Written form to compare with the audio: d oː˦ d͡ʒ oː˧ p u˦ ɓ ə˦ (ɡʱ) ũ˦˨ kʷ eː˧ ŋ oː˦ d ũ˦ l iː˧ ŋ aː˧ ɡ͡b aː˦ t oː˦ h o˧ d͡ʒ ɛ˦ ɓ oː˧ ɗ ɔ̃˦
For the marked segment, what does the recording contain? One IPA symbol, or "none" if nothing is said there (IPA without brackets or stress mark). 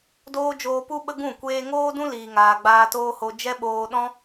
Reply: ɡ